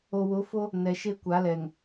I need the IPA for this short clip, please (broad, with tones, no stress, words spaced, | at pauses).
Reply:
o˨wʊ˨˦fo˦ | nɛ˨ʃe˦kʷa˨˦lɛ˨ŋ